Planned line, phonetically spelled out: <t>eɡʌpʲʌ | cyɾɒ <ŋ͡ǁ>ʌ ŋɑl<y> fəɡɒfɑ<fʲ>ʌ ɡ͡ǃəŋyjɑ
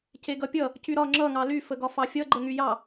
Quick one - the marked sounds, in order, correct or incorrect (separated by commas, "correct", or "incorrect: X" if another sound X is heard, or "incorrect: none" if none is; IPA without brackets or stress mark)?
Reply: incorrect: c, correct, correct, correct